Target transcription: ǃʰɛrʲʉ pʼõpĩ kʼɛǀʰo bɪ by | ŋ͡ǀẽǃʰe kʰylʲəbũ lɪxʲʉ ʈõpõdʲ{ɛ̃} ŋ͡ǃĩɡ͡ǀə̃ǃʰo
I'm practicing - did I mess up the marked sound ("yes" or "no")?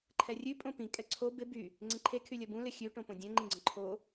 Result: no